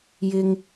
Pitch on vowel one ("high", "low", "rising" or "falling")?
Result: low